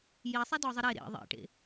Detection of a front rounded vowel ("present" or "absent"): absent